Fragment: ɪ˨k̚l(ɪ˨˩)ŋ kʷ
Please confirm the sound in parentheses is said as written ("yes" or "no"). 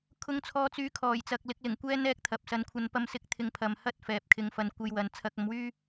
yes